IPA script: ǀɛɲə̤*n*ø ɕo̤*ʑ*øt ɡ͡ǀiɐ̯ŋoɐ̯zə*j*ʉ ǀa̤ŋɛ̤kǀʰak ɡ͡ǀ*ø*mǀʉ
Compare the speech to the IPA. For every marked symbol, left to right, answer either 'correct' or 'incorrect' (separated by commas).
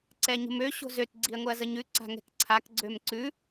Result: incorrect, incorrect, incorrect, correct